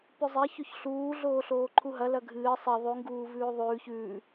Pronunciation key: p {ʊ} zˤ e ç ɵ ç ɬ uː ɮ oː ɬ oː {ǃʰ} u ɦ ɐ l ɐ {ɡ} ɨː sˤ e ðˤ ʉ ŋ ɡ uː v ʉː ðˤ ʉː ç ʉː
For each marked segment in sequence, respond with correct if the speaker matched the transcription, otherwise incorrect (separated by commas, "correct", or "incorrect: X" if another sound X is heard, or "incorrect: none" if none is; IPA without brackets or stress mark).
incorrect: ʉ, correct, incorrect: ɡʱ